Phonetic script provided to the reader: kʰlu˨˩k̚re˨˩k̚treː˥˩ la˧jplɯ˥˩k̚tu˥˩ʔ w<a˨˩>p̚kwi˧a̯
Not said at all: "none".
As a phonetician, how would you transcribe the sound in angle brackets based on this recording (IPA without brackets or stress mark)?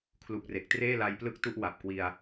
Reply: a˨˩